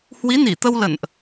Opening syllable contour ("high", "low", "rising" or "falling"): rising